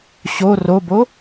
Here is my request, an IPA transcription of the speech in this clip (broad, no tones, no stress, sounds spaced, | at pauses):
ɕ o r o b o